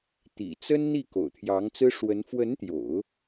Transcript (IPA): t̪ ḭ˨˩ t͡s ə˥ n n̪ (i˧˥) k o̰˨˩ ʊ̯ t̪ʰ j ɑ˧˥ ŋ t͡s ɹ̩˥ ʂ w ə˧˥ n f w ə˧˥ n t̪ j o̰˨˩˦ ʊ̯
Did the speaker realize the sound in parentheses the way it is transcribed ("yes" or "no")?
no